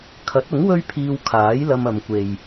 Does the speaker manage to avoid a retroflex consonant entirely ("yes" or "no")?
yes